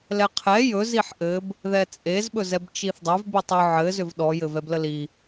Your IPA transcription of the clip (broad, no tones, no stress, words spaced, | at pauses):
lɛqʰɛ jɵz iħʔɘb | ðɛt͡sʼez ɓɵzɛbt͡ʃiθdˤʏv bitˤʏ ʕɘ zʏvɗɔ jɘvɛbləli